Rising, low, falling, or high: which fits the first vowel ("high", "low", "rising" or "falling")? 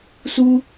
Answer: high